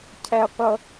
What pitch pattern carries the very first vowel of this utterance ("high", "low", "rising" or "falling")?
high